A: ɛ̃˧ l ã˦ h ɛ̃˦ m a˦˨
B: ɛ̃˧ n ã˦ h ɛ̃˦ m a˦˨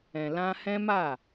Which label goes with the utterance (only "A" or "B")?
A